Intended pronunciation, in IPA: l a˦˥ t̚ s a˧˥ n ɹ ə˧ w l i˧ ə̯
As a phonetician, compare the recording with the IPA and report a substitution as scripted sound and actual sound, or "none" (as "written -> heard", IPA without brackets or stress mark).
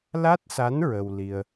none